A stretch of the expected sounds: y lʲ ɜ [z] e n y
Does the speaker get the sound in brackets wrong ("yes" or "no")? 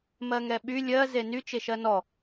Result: no